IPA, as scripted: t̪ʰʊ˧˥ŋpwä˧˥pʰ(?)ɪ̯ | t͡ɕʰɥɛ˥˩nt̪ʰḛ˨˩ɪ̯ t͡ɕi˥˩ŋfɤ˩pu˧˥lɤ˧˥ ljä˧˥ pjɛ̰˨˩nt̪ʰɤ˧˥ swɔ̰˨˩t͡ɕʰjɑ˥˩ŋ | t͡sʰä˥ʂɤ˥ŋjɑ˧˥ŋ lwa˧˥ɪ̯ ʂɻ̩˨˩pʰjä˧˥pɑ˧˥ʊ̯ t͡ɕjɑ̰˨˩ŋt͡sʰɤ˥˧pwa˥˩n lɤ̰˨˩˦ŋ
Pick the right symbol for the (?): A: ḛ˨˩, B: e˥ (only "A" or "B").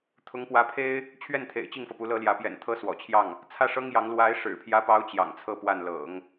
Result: B